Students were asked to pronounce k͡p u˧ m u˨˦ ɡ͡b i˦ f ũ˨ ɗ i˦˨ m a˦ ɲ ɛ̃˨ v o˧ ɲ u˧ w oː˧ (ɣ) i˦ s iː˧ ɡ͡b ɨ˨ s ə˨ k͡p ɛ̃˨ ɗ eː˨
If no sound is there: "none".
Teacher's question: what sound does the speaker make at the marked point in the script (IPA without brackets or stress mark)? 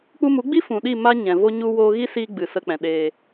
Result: ɣ